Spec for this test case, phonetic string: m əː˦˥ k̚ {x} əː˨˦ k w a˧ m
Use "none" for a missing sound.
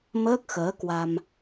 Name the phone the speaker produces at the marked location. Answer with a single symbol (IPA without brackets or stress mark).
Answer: x